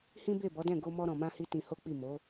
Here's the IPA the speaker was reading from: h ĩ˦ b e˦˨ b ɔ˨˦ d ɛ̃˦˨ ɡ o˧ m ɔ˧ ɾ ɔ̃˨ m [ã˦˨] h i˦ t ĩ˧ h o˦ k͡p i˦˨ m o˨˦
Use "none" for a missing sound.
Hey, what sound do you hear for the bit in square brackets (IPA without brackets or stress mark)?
ã˧